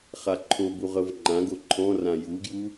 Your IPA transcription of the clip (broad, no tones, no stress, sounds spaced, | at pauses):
χ a ǃʰ o b u ʁ ɤ v ŋ͡ǃ ã ɡ o ǃʰ ɔ̃ r ã j u ɡ j u